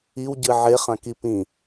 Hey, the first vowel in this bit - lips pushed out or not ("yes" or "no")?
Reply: no